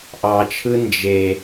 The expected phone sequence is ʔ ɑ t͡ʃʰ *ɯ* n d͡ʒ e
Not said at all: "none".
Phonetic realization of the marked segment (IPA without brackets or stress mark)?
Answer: ɯ